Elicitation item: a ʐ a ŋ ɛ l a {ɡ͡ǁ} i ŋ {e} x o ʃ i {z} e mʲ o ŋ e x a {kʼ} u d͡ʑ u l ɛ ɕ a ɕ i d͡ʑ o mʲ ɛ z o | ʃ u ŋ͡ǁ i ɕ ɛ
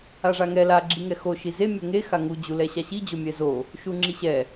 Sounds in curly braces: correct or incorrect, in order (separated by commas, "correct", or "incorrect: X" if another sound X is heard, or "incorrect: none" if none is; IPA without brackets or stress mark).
correct, incorrect: ɛ, correct, incorrect: ŋ